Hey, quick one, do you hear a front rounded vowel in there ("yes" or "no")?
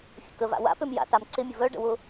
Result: yes